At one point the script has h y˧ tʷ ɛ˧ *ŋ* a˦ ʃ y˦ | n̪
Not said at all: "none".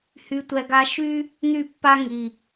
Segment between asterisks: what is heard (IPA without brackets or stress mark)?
ɡ